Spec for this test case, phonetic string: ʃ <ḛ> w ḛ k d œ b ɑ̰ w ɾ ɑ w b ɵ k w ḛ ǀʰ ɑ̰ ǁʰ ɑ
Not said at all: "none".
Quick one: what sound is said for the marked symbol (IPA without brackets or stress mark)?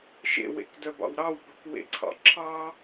ḛ